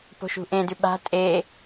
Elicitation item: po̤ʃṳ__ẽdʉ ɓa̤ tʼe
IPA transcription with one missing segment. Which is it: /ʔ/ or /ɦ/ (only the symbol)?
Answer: ʔ